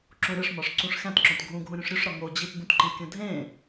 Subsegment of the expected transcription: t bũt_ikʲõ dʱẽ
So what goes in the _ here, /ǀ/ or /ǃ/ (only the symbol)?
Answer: ǃ